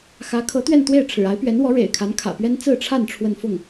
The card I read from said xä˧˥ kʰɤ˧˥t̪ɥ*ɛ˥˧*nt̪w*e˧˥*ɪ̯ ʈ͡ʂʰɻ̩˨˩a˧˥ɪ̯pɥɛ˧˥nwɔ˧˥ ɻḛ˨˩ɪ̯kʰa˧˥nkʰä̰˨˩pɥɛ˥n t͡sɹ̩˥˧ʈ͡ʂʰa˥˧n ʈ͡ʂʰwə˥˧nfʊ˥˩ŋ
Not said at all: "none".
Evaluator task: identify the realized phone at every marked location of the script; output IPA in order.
ɛ˥˧, e˥˩

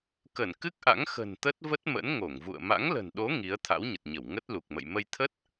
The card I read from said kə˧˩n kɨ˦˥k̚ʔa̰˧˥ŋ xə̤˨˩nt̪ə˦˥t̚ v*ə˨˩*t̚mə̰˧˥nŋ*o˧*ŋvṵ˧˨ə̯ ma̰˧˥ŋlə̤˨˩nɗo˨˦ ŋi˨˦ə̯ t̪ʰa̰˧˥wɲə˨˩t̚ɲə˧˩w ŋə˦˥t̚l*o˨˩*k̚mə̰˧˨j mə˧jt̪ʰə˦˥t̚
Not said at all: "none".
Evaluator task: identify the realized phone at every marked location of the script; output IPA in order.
ə˦˥, o˧˩, u˨˩

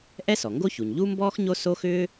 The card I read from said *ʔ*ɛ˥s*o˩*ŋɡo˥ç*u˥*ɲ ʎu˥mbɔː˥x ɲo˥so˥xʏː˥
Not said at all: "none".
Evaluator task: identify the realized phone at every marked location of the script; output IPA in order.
ʔ, ɔ˩, u˩

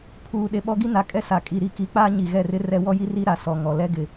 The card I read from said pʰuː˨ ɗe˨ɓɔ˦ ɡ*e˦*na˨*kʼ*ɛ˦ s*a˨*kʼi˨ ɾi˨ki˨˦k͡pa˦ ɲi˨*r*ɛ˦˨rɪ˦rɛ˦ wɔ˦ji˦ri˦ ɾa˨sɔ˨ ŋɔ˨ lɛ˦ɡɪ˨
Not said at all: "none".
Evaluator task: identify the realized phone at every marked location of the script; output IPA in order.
i˦, kʼ, a˨, ɣ

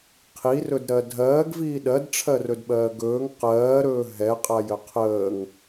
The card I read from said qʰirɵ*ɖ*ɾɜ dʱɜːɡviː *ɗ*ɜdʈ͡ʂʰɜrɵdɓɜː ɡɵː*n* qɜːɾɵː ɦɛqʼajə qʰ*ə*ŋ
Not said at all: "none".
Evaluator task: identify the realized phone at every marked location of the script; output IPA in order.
d, ɗ, ŋ, əː

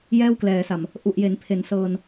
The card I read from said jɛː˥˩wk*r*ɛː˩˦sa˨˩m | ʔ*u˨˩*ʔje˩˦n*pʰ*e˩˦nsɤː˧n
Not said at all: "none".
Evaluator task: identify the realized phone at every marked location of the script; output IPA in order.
l, u˨˩, pʰ

